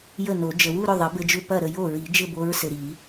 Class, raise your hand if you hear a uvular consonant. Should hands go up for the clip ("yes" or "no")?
no